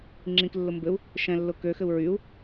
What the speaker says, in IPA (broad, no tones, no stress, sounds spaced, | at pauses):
ŋ͡ǁ ĩ k lː ʊ m b ɘ u̯ | ʃ ɛ̃ lː ʊ k ø x ɘ u̯ ɹ y u̯